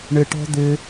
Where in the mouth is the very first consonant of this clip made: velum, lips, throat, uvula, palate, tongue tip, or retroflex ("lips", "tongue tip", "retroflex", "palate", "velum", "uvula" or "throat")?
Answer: retroflex